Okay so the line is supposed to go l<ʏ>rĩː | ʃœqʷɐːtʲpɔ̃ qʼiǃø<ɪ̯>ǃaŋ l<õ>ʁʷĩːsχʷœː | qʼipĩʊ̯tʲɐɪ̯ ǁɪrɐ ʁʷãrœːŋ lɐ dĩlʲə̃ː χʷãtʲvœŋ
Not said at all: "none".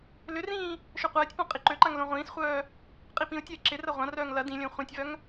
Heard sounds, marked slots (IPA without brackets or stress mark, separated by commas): ʏ, none, õ